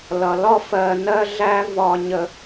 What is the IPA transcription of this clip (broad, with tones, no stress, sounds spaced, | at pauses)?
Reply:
l ʌ˨ l ɒ˦ f ɜ˨ n ɜ˦ ɮ æ˦ v ɒ˨ ɲ ə˨